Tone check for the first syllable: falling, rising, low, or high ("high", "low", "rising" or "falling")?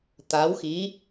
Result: rising